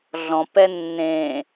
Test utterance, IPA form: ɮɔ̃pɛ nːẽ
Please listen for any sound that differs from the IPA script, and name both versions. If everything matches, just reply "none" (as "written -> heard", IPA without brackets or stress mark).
none